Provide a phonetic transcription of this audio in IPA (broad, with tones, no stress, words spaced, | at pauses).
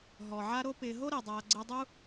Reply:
ɦɔ˩ʕa˦ɾo˦ pɪː˨ɦo˥ɾe˩dˤaː˨ ɡ͡ǀɪ˦dˤu˥